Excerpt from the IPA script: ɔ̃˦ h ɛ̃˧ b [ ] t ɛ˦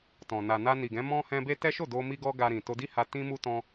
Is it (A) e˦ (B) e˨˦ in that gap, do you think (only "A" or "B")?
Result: A